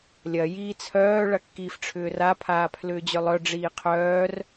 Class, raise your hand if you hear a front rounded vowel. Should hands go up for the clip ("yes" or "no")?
yes